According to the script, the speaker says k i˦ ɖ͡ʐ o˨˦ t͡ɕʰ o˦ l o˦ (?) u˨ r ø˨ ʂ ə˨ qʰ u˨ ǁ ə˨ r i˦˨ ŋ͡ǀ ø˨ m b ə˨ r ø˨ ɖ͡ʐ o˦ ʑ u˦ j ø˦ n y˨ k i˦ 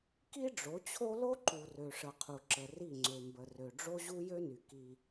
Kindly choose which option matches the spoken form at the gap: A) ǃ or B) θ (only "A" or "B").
A